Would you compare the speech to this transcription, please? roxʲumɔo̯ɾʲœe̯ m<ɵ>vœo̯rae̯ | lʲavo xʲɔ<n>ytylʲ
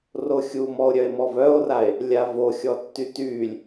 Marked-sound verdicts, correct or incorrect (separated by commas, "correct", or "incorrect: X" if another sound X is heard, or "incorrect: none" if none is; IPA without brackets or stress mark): incorrect: ɔ, incorrect: tː